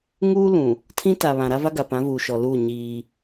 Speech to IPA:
ŋuː˦ lũ˨ | tʰĩ˦ta˨ βã˨ɾa˦va˦ ɡa˨pã˨˦vuː˨ʃɔ˨ luː˦˨ ɲiː˦

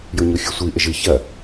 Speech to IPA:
joɲoxʲusʷi ʔɘʒɨ çɐ

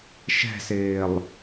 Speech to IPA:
ʃɛ̤sɪːlˠ

